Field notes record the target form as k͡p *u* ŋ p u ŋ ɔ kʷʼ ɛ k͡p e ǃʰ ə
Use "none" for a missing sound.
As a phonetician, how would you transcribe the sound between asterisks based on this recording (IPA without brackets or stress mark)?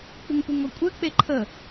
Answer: u